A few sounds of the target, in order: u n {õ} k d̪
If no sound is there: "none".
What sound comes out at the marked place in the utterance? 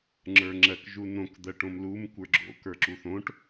õ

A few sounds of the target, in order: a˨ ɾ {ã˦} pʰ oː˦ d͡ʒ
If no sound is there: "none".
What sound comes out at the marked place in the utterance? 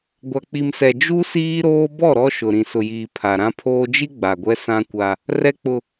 ã˦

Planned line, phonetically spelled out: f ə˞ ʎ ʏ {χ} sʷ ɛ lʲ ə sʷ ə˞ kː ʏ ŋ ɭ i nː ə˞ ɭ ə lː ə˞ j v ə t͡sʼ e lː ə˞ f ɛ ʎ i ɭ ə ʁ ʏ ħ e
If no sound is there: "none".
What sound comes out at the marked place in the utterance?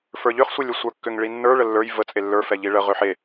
χ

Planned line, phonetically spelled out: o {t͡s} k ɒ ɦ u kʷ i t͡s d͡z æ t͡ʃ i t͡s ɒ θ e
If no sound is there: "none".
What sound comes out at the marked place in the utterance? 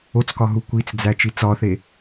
t͡s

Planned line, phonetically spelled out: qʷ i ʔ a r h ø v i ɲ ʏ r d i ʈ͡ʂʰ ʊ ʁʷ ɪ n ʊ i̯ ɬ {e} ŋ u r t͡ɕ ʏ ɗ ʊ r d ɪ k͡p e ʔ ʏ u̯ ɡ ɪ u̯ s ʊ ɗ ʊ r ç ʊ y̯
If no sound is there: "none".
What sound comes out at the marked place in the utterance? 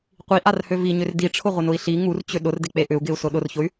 i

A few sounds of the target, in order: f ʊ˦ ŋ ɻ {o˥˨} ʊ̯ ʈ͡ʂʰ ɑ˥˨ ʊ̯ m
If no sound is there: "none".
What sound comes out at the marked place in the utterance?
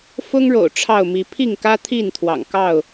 o̰˨˩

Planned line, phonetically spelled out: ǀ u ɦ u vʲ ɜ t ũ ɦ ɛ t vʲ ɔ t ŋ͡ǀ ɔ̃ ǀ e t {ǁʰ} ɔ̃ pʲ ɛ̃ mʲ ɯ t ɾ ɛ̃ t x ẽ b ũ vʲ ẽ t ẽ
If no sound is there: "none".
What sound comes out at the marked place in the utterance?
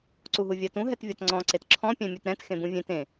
ǁʰ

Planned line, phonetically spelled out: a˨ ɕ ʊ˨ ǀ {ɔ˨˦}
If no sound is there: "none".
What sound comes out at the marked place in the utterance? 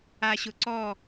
ɔ˦˨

